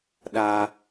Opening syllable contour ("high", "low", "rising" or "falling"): high